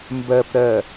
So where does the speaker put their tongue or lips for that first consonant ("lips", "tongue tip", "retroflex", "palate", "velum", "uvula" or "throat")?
lips